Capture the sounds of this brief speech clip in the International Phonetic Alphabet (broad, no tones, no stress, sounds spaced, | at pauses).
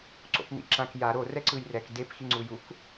ǀ o̰ p n̪ ḭ ǁ ã k j a ɾ o r ɛ ǀ ɯ j r ɛ k d e p x i ŋ͡ǀ u j u k